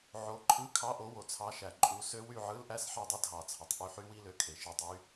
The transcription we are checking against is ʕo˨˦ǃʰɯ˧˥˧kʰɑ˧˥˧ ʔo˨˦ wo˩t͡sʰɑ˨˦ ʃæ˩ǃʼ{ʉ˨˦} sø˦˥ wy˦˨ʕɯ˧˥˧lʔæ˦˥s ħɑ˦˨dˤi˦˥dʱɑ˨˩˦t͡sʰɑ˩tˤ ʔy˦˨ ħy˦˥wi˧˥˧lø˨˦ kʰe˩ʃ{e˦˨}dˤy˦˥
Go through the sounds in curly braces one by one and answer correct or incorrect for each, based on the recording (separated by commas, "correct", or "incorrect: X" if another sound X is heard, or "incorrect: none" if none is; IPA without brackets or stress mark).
incorrect: u˨˦, correct